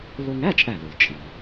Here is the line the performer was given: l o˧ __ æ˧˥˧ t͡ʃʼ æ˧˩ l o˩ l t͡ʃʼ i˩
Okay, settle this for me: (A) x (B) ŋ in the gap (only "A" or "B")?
B